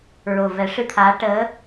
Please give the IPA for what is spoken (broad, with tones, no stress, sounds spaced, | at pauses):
ɹ o˨˩ v ɛ˨˩˦ ʂ ɨ˧ t̪ʰ aː˧˥ ʈ əː˧˥